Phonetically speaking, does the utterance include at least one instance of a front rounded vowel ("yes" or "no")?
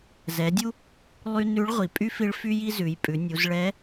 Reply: yes